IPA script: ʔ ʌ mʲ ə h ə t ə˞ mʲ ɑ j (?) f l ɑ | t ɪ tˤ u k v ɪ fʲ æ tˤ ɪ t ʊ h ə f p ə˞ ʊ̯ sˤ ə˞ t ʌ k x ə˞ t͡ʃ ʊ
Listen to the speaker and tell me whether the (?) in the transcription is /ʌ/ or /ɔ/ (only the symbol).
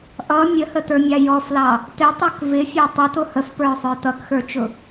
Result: ɔ